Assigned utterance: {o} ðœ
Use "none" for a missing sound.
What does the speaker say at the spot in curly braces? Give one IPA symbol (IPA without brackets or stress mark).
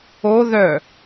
o